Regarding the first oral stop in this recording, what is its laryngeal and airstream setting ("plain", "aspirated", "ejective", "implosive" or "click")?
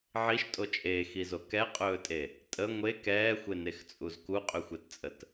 ejective